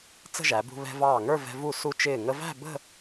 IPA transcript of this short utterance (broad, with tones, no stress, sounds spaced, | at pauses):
t͡s ə̤˥˧ ʒ æ˩˧ b ṳ˧ β ɛ̤˧ v ɑː˧˩ ŋ ə˞˥˧ v ɛ̤˧ v u˧˩ s u˧ t͡ʃ ɪː˧˩ ŋ ə˧ v æ̤˥˧ b ə̤˥˧